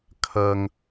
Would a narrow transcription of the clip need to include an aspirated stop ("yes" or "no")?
yes